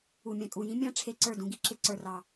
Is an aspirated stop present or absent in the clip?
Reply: present